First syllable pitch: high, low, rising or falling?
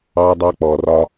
high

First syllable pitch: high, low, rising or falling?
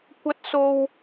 high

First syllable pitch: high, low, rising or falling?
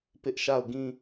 high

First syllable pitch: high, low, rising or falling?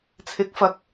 rising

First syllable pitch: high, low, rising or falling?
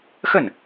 falling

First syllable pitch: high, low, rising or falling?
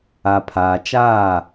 low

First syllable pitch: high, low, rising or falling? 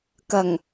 low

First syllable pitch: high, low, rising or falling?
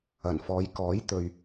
low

